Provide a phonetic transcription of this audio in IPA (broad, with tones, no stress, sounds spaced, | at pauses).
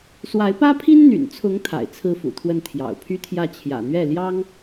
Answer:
s w a˧˥ ɪ̯ p ä˥ pʰ i˥ n n̪ y̰˨˩ n t͡sʰ ʊ˧˥ ŋ t̪ʰ a̰˨˩ ɪ̯ t͡sʰ ɹ̩˥ f ṵ˨˩ t̪ʰ w ə˥˩ n t̪ʰ j ɑ̰˨˩ ʊ̯ pʰ y˥ t̪ʰ j ä˥˩ t͡ɕʰ j ä̰˨˩ n̪ ɥ ɛ˥˩ l j ɑ˥ ŋ